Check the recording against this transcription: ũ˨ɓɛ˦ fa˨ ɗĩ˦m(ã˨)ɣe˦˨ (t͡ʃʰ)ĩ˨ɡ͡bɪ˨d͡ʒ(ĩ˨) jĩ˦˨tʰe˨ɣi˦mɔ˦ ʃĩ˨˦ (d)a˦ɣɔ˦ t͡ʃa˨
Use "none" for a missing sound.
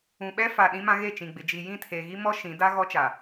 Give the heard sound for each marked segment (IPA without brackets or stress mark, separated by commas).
ã˦, t͡ʃ, i˨, d